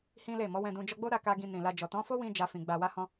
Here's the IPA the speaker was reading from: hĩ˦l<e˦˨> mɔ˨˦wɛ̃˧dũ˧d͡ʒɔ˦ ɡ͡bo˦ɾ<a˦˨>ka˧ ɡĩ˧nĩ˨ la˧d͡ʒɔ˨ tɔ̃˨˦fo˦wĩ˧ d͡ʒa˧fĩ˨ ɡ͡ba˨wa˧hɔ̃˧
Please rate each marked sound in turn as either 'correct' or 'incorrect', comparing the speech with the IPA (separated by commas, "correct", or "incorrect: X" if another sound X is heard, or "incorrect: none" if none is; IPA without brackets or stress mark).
correct, correct